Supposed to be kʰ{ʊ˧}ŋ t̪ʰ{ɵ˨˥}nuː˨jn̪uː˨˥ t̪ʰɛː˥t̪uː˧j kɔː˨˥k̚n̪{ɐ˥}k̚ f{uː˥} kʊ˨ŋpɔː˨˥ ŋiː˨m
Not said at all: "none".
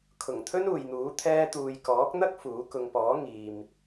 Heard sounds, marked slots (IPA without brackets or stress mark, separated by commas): ʊ˨˩, ɵ˥, ɐ˥, uː˨˥